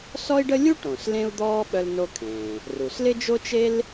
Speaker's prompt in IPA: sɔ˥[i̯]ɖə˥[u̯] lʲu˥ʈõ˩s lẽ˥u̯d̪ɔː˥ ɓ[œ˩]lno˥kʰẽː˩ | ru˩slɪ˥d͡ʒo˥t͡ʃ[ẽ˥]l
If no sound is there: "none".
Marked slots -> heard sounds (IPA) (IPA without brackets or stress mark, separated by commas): i̯, none, œ˥, e˥